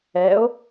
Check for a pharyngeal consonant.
absent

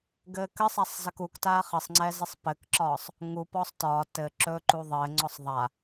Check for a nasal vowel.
absent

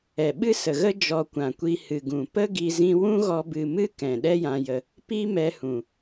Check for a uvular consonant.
absent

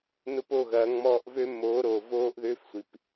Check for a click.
absent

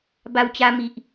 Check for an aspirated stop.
absent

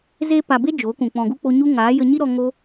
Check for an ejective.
absent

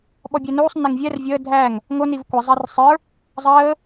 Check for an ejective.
absent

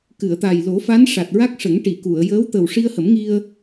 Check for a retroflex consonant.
present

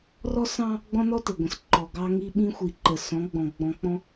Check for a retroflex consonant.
absent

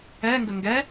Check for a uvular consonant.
absent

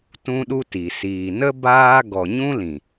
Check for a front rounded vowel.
absent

